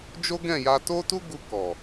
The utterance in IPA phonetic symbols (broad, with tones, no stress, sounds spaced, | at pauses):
d͡ʒ o˦ ɡ ɛ̃˦˨ j a˧ t o˦ t u˦ ɡ u˧ k ɔ˨